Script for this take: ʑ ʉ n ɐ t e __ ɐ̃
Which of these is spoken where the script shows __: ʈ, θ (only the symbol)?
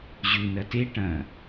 ʈ